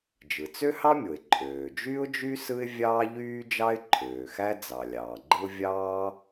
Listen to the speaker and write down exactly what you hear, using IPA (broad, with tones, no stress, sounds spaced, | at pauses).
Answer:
d͡ʒ ɯ˩ t͡s ø˥ h ɑ˥ mʲ o˩ ɪ̯ ǃʼ øː˩ d͡ʒ y˥ ʊ̯ d͡ʒ y˥ s ɯ˥ ɪ̯ vʲ ɑː˥ ʎ yː˥ d͡ʒ ɑ˥ ɪ̯ ǃʰ øː˩ x æ˥ d͡z ɑ˩ lʲ ɑː˩ ɡ͡ǃ ɯ˥ ʊ̯ vʲ ɑː˥